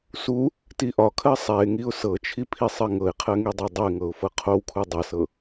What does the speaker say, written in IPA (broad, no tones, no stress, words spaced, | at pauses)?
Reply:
su | tiʔɒkʰɜ sˤɛɪ̯ŋiʊ̯ sɤt͡ʃʰi pʰisˤɜŋɤɪ̯qʰɜ ŋidˤɛdˤəɪ̯ŋɤʊ̯ fɤqʰowkʰu dˤɜsɤ